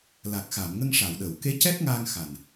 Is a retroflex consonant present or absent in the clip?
present